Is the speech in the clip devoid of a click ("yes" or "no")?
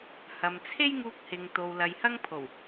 yes